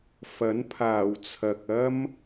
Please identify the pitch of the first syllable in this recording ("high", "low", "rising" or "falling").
rising